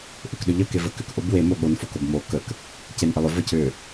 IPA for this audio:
ʔʏkɗʏʎə kevəkʏkʔob wemo ɠonfok obmo kək | cenʔəlˠʏ vəcʏ

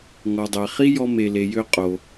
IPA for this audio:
ŋɔ˩dˤæ˩χi˥ jɔ˧me˩le˩jø˧ qʼo˩

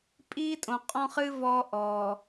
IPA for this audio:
pʼiː˦tʼõ˨ qʼɔ̃˦χɨ˦ vɔː˦ʔɔː˨

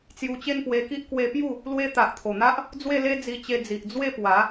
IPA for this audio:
t͡sju˧t͡ɕe˥˧npwe˧ki˦ʔ kwe˧pju˥˧ | lwe˦ t̪a˨ʔt̪ʰo˨˩n̪a˦ʔ | d͡zwe˥˧le˦d͡zi˧t͡ɕe˧ d͡zi˨ʔd͡zwe˥˧pwa˨˦

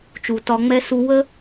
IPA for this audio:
t͡ʃu˩tɒ˧ŋ͡mɛ˥ su˧wə˥

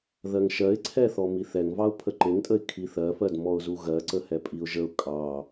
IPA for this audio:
ðɜŋʃɜɪ̯ǀʰɛθɔ miθɛŋvɑʊ̯ pʰəǃeŋtʼəɪ̯ kʰiθɜfɜd mɔʊ̯zuɣɜǀə hɛpʼiʊ̯ʒəʊ̯ kʼɑ

